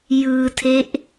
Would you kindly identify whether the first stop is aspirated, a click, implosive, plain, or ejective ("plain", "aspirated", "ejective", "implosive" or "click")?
aspirated